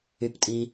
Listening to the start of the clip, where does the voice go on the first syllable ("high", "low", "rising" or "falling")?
low